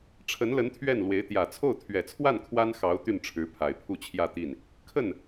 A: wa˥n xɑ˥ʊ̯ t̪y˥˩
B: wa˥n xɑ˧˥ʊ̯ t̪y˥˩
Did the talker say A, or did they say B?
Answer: B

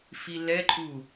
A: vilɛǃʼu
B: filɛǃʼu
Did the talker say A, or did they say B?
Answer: B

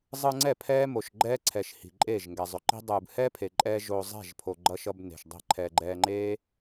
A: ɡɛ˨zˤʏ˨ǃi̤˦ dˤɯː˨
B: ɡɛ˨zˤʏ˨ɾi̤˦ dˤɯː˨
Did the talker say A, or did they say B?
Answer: A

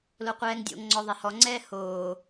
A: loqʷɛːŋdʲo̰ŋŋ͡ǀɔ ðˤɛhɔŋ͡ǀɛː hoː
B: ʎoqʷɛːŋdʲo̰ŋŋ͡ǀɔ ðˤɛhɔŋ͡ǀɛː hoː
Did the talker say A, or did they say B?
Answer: A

